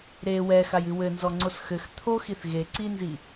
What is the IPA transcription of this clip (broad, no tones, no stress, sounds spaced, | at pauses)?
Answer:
ɾ e w ɛ x a j ɨ w ɘ n z ɔ ŋ͡ǀ o s x ɘ x t̪ʰ o x i θ ɣ e ǀ i n z i